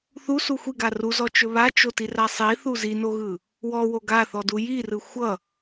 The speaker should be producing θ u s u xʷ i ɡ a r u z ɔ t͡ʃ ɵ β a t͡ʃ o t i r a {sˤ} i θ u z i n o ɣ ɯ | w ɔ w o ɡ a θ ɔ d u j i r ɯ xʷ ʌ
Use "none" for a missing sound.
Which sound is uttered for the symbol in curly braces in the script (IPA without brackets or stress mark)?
sˤ